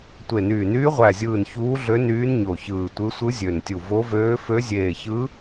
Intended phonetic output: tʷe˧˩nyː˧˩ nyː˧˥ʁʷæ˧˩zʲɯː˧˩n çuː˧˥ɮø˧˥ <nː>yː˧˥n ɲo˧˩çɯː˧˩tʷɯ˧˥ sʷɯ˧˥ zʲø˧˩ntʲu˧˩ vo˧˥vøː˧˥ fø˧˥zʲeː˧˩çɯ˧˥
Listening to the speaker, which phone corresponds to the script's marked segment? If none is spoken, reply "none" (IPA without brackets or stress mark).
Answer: n